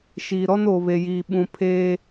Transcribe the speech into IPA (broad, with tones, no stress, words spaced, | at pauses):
ʃiː˨ɾɔ˦noː˨ βe˨jiː˨ɓũ˨ pʰeː˦